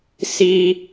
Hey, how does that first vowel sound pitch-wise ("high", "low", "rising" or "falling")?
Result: high